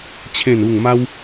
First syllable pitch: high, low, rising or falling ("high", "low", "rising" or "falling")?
falling